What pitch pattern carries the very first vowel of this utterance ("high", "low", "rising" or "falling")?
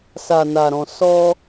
low